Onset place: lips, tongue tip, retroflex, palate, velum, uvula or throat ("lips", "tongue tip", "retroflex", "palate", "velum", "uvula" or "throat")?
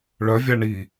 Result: retroflex